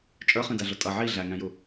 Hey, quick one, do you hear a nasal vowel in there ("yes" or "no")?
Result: yes